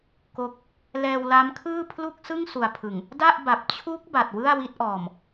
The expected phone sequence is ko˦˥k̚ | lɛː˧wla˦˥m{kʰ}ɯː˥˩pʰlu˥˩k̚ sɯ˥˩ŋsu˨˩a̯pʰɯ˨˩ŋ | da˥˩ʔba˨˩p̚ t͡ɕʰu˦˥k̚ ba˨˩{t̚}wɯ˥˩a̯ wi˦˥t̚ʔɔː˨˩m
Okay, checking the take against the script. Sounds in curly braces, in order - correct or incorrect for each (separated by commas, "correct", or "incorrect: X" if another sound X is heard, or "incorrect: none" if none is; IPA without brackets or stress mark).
correct, correct